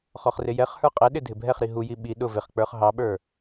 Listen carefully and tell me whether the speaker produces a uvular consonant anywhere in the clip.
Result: yes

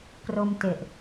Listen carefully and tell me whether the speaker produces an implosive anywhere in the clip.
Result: no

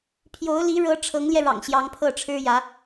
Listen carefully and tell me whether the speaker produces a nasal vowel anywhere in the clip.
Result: no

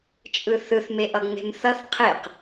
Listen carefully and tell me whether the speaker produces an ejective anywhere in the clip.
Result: yes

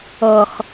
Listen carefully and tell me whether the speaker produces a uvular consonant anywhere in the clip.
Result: yes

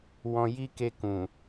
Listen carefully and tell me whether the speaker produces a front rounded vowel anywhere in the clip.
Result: no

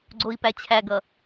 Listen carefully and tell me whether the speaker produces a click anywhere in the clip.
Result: yes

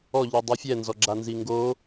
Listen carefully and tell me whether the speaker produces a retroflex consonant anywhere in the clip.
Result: no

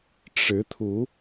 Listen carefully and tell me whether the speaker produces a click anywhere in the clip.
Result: no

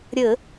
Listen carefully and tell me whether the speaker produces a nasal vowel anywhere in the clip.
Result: no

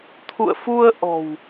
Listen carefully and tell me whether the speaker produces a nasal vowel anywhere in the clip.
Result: no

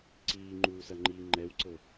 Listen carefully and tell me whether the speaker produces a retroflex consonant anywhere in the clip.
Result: no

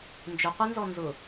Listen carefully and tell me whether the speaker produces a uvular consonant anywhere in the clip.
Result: yes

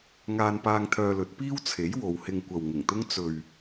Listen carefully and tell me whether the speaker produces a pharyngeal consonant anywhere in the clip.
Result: no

